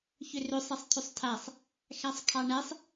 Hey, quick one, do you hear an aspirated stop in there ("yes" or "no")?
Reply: yes